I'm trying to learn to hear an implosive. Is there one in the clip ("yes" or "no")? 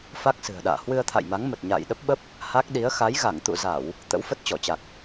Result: yes